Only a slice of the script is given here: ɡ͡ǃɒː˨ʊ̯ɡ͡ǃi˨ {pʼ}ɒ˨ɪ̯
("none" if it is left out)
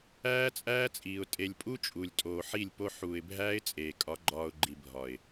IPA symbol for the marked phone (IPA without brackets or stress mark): bʱ